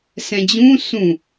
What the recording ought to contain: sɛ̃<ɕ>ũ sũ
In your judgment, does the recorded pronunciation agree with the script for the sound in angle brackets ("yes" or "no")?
no